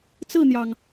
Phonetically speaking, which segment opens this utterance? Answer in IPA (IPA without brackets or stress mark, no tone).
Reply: t͡s